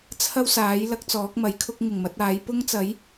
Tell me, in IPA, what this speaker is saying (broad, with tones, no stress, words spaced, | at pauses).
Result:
t͡sʰɐ˥wsaː˨˥j lɐ˥k̚t͡sɔː˨˥k̚mɐ˨˥jkʰʊ˥k̚ ŋɪ˨˩ŋmɐ˨˥t̚aː˨˥j pʊ˥ŋt͡sɐ˨˥j